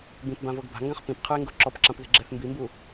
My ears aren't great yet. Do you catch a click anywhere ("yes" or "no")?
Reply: yes